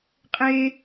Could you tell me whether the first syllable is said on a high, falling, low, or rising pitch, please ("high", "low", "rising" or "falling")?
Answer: high